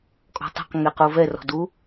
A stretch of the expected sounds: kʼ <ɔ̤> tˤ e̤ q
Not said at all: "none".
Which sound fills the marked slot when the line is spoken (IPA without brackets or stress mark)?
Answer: ɔ̤